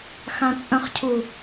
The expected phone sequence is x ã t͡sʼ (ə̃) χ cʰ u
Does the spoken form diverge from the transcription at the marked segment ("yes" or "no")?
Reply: no